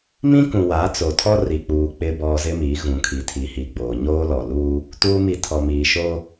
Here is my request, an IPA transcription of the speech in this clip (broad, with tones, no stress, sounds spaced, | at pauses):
m ĩ˦ k ũ˨ w a˨˦ t͡s o˨ tʰ ɔ˦ r i˨ k͡p uː˨ k͡p ɪ˨ b ɔ˨ z ɪ˦ m iː˨˦ ɣ ũ˨ kʰ i˨ tʰ iː˨ h iː˨ ɡ͡b oː˨ ɲ oː˦ l ɔ˨ l uː˦ | t uː˦ m i˦ tʰ ɔ˨ m iː˨ ʃ oː˦